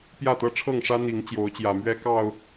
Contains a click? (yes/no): no